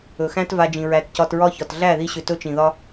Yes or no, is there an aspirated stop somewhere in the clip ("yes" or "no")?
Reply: no